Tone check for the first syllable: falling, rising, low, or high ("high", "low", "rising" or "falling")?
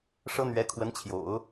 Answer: high